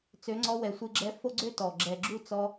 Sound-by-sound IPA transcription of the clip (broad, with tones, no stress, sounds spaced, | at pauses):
t͡s ø˨˦ ŋ͡ǀ ɔ˧ w ɛ˨ sʷ ɨ˧ ɡ͡ǁ ɛ˧ f o˦ ɡ͡ǀ ø˦ t ɔ˨ ɡ͡ǁ ɛ˨ ɡ͡ǁ u˦˨ t͡s ɔ˧